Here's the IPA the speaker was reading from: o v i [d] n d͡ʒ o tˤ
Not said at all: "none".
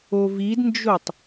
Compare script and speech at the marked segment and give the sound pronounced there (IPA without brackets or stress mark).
d